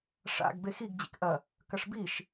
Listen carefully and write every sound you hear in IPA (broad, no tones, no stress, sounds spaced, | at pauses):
ʂ a̰ ɡ b e x i ɡ d͡ʑ ḭ k ʔ ɐ | k ɐ ʂ b i ʃ